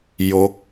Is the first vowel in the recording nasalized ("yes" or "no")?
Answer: no